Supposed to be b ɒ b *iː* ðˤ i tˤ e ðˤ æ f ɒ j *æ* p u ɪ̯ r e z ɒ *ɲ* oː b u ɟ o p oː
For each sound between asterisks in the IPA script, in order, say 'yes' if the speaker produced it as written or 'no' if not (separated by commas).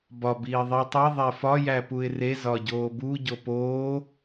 yes, yes, no